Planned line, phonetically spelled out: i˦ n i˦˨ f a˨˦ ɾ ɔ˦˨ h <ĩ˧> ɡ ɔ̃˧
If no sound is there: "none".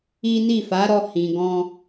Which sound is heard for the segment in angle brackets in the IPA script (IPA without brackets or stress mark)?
ĩ˨